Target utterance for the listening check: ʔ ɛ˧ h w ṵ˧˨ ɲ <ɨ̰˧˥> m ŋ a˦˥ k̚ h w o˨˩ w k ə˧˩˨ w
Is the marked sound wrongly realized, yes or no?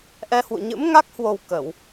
no